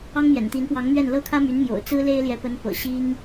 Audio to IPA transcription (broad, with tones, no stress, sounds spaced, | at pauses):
ɑ˥ ŋ m j ɛ̰˨˩ n t̪ i˧˥ n p w ɑ˧˥ ŋ m ɥ ɛ˥˩ n l ɤ˥ kʰ ä˥ m y˧˥ n m j o̰˨˩ ʊ̯ t͡s ɹ̩˥ l e˥ ɪ̯ l j ɛ˧˥ p ə˧˥ n p ɤ̰˨˩ ɕ i˥ ŋ